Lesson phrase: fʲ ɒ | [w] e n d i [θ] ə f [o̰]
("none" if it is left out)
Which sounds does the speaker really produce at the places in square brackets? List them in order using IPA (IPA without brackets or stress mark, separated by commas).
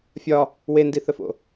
w, θ, o̰